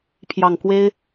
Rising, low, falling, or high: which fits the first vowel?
low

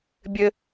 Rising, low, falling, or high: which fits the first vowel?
high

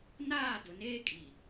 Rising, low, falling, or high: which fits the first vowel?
falling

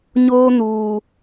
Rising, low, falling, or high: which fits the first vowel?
high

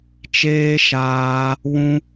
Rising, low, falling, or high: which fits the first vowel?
high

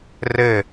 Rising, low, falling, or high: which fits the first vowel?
falling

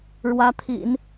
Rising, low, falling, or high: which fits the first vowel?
rising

